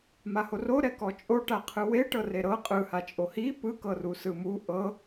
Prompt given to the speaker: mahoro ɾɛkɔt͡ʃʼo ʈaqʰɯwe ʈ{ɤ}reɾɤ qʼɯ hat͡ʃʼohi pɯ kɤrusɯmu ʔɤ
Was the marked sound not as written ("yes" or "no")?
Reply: no